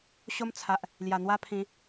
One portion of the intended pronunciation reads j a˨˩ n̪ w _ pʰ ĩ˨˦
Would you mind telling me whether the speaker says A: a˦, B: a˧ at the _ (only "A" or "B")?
A